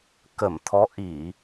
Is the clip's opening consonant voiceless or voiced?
voiceless